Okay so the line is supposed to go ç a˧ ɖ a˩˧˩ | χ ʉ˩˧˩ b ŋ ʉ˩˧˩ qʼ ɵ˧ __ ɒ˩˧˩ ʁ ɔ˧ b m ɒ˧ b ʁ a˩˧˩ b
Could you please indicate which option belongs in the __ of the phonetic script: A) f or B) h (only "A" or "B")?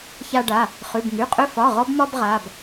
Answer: A